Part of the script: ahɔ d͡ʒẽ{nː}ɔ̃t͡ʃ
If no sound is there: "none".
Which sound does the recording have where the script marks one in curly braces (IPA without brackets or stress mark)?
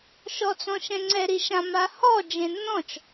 nː